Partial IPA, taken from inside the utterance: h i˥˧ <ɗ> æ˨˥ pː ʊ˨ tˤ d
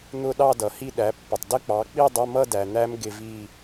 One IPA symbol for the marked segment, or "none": ɗ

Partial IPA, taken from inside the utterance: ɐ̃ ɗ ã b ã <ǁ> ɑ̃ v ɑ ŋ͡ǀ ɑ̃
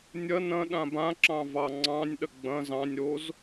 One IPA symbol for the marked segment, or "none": ǁ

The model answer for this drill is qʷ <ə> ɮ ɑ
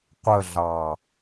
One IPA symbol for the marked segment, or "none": ə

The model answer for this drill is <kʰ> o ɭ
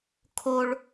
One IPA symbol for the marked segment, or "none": kʰ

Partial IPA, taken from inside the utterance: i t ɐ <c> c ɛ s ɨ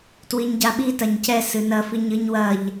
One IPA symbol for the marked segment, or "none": ɲ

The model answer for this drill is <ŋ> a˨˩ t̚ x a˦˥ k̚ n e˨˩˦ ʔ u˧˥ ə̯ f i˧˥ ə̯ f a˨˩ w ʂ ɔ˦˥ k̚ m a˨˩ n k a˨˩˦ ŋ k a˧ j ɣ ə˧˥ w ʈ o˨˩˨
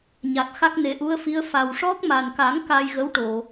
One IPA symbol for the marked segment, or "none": ɲ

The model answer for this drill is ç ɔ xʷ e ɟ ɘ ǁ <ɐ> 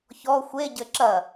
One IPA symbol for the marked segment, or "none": ɐ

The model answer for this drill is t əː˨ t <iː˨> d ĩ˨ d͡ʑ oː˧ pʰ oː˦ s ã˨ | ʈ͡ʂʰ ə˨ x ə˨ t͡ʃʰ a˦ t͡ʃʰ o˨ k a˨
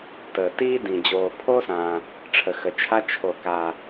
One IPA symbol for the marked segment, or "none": iː˦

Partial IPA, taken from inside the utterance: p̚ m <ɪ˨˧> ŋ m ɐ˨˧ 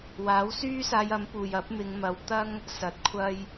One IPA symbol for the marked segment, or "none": ɪ˨˧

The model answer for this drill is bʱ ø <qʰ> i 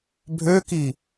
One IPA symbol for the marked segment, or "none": k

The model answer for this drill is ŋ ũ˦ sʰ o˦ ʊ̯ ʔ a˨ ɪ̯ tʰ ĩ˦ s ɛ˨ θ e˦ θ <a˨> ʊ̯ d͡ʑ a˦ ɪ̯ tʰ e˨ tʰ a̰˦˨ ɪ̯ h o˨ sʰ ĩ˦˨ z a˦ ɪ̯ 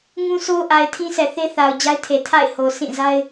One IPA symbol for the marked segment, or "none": a˨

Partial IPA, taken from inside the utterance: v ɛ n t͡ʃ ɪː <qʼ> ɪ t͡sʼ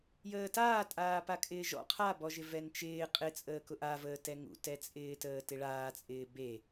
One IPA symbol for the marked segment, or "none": qʼ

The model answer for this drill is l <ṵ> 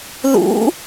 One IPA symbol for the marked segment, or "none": ṵ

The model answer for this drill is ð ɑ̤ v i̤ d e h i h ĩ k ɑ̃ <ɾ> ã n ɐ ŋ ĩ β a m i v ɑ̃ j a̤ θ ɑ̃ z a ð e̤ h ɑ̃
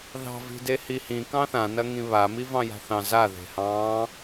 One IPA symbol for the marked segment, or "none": θ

